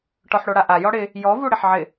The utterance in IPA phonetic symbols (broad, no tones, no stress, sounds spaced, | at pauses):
ʈ ɔ ħ ɽ o ɽ a ʔ a j ɔ ɽ ɪ | j ɔ v u ɽ ɪ ħ ʕ ɪ